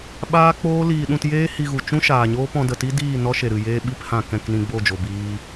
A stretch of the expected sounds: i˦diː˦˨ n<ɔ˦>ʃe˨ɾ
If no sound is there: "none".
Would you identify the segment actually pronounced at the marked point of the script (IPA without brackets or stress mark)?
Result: ɔ˦